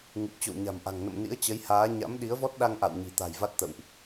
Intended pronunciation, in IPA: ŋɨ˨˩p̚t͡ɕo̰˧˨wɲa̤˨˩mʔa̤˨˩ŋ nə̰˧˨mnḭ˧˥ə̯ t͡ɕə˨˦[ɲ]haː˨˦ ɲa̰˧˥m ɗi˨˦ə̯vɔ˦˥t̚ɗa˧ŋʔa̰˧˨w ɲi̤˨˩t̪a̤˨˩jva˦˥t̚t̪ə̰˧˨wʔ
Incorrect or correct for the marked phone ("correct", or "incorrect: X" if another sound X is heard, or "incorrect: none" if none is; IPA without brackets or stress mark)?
incorrect: j